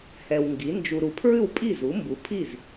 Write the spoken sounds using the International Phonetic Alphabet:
h ɛ˨ w ŋ ɡ i˩˥ n d͡ʒ u˨ ɾ u˨ pʰ ɹ ʉ˥˩ w pʼ i˥˩ z u˩˥ m b u˩˥ pʰ i˥˩ z

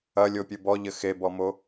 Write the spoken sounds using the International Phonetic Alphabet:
ɐ lʲ o pʲ ɨ b ɔ ʎ ɘ x e b ɔ m o

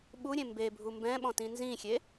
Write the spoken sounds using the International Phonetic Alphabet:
ɓ u ɾʲ ẽ m b e bʱ u m b ɛ̃ ɓ ɔ̃ t ĩ n z ĩ xʲ e

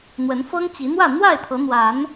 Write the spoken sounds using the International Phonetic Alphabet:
n̪ w ə˨˦ n f ɤ˦ ŋ t͡ɕ i˨˦ n̪ w ä˥˨ n̪ w a˥˨ ɪ̯ t̪ʰ ɤ˨˦ n̪ w a˨˦ n

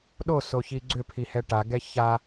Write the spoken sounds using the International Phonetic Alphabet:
ɗ o s o ç i ɡ͡ǀ ʏ pʰ i h ɛ ʈ a ɡ ɛ ç a

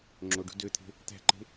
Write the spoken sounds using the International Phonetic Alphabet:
ŋ͡ǁ o ɖ ṳ d ø t̪ʰ e̤ | t̪ æ̤ ǃ e̤

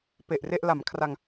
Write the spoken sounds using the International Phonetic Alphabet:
p e˨˩ ʔ r e˥˩ ʔ l a˩˦ m kʰ r a˧ ŋ

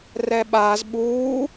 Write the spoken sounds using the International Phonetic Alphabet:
r ɛ ɓ aː z ɓ uː

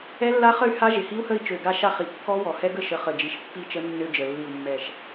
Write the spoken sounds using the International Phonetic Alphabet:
ɛ˦˥ lː a˦˥ χ ə˥˨ y̯ h a˦˥ ʒ ɪ˨˩ h i˦˥ u̯ h ə˥˨ i̯ t͡ʃ ø˨˩ ɡ a˥˨ ʃ a˥˨ χ i˨˩ kː ɔ˦˥ w ɔ˨˩ h ɛ˦˥ ɡ ə˥˨ ʃ ə˨˥ χ ə˨˩ d͡ʒ i˨˩ ʃ pː i˥˨ t͡ʃ ə˦˥ nː ø˦˥ d͡ʒ ə˨˩ lː i˨˩ u̯ mː ɛ˨˩ ʃ

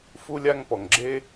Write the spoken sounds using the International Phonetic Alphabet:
f u˥ lʲ a˥ ŋ p ɔ˩ ŋ ɡ͡ǁ e˥

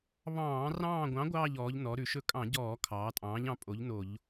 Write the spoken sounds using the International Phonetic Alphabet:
β ɑ̃ː˧˩˧ r ɑ̃ː˦˨ ɡʷ ɑ̃˨˥ ɡʷ ɑː˦˨ ʎ ɔː˩˧ ʎ n ɔ˩˧ ɾ ʉ˩˧ ʃ ɵ˦˨ kʼ ɑ̃˧˩˧ ɟ ɔː˧˩˧ kʰ ɑː˩˧ tʼ ɑ̃ː˨˥ ʎ ɑ̃˨˥ pʼ o˨˥ ʎ n o˧˩˧ ʎ

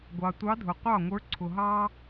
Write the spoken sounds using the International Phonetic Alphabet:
ɡʷ ɑ˨ tʷ ɑ˧˥ dʱ ʊ˨ qʷ ɑ˥˩ ŋʷ ə˞˧˥ ǀʰ ʊ˨ ɦ ɑ˥

